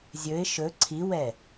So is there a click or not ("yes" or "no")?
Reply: yes